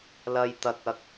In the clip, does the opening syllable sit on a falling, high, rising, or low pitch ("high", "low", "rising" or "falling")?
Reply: low